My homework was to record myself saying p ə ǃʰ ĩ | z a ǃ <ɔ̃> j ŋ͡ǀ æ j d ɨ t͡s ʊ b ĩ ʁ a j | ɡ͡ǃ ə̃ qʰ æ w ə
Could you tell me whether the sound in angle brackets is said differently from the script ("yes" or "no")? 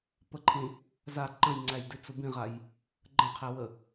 yes